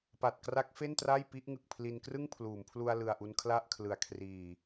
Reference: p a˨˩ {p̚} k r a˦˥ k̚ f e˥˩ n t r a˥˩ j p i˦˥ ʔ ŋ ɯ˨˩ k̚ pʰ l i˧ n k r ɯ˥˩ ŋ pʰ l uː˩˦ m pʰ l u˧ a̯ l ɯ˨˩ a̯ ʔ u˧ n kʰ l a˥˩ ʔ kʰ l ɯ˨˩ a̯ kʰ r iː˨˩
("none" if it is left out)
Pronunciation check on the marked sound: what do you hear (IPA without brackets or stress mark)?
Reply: t̚